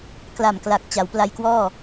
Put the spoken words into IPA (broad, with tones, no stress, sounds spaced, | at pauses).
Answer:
k l a˨˩ m k l a˨˩ k̚ t͡ɕ a˩˦ w p l a˧ j k w ɔː˥˩